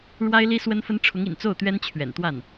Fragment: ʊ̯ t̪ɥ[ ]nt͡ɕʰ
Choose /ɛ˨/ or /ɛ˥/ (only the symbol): ɛ˥